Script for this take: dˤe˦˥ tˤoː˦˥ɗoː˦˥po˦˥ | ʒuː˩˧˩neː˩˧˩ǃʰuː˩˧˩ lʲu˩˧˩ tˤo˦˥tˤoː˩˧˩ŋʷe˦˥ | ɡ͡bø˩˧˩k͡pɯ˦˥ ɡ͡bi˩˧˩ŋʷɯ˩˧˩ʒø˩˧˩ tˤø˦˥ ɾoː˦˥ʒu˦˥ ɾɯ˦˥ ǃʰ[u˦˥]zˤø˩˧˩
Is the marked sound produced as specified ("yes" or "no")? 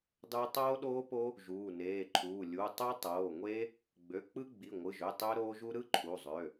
no